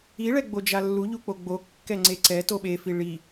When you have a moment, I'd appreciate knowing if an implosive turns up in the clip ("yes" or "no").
yes